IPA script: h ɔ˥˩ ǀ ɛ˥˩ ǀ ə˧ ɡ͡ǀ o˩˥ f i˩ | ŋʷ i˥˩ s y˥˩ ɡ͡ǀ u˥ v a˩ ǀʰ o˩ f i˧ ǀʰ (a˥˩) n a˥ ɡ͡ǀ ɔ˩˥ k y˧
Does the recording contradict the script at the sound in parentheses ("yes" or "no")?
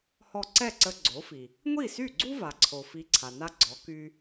yes